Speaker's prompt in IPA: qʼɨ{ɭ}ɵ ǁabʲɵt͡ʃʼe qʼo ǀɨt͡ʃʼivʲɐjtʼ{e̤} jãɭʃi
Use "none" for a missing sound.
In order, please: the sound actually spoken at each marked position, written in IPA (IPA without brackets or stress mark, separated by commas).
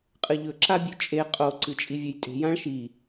ʎ, e̤